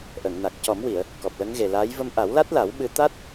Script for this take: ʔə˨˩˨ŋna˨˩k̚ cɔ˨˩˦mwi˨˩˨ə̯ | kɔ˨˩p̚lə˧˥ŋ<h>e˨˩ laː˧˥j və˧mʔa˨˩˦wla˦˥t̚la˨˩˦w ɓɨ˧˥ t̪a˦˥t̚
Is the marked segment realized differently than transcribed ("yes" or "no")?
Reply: yes